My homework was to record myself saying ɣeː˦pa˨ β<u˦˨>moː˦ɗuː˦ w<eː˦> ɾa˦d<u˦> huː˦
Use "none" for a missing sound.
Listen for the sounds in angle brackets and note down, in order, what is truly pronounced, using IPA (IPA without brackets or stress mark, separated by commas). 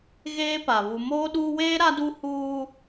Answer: u˨, eː˦, u˦